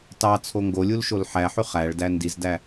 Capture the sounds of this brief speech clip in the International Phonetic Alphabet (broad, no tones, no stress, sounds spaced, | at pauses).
t ɑ t͡sʰ o ŋ ɡ o lʲ u l ʃ o l ħ æ ħ y χ æ ɭ d æ n d i z d æ